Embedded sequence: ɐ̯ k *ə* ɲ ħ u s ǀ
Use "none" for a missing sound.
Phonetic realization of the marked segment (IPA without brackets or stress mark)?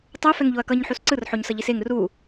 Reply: ʌ